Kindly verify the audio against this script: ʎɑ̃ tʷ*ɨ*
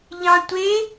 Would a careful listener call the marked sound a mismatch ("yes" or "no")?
yes